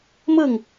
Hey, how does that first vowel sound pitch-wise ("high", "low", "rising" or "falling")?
falling